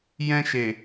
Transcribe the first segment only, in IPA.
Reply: j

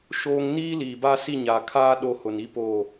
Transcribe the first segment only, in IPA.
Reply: ʃ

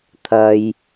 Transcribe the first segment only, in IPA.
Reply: t̪ʰ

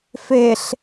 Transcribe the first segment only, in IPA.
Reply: f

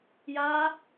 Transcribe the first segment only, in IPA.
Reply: j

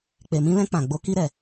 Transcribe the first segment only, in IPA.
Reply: k͡p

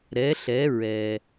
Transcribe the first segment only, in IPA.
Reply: ɾ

